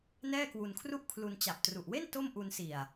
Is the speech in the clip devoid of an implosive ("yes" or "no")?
yes